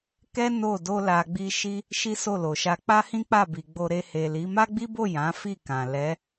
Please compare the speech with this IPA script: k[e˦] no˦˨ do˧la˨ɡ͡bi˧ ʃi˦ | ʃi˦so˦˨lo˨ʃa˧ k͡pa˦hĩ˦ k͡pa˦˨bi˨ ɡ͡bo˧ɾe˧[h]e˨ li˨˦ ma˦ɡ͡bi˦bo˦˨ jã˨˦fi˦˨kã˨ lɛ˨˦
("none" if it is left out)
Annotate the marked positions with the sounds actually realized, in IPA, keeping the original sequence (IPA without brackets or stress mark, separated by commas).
ɛ˦, h